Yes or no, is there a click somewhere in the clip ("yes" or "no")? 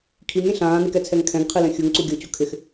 yes